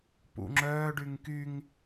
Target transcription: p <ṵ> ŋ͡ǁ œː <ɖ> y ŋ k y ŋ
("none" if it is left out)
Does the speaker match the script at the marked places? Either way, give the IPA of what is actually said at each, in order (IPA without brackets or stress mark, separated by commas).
ṵ, ɖ